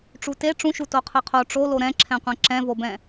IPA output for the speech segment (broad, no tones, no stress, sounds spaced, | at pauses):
ʈ͡ʂ u t e ʈ͡ʂ ũ ʃ u t o qʰ ɯ qʰ o ʈ͡ʂ o l o ɾ ɛ̃ ǁʰ ɛ̃ qʷ ɛ̃ ǁ ɛ̃ v o b ɛ̃